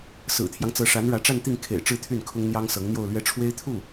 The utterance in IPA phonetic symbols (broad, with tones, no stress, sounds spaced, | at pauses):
s ɹ̩˨˩ t̪ʰ j ɑ˦ ŋ t͡s ɤ˧˥ ʂ a˧˥ n ɻ ä˧˥ ʈ͡ʂ a˥˧ n t̪ i˥˩ ŋ kʰ ḛ˨˩ ɪ̯ ʈ͡ʂ ɻ̩˥˧ t̪ʰ y˥˩ n kʰ ʊ˥ ŋ n̪ j ɑ˥ ŋ s ɤ˧˥ ŋ n̪ j o˥˧ ʊ̯ l ɥ ɛ˥˩ ʈ͡ʂʰ w e˥ ɪ̯ t̪ʰ u˥˩